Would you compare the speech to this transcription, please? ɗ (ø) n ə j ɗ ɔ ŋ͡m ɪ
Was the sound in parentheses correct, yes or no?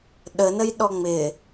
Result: no